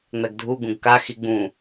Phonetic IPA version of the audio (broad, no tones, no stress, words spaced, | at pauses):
ŋ͡mɛɡdʱu ɡũɡka xiɡ͡bũ